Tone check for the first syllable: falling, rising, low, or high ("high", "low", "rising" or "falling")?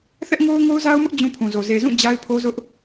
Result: high